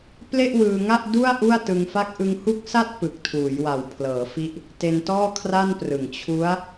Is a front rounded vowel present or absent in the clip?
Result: absent